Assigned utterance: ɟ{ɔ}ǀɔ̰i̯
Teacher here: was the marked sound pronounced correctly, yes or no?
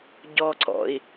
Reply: yes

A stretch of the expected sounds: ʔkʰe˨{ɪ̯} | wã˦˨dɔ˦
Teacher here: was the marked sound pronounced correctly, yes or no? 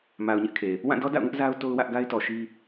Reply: no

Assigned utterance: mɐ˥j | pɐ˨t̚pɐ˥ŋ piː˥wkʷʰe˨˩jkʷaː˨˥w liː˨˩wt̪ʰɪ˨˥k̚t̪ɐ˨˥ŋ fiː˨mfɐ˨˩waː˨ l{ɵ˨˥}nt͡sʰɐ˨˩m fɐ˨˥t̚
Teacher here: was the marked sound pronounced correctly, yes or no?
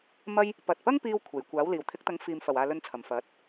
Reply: no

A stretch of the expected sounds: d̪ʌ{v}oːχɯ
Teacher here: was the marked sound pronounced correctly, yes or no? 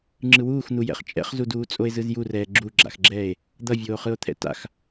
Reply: no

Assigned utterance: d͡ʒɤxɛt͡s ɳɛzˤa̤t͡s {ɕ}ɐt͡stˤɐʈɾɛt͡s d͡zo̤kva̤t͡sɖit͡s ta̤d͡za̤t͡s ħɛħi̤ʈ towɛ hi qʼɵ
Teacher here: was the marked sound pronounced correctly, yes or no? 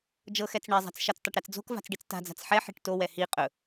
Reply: no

